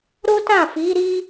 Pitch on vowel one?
high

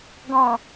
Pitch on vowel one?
low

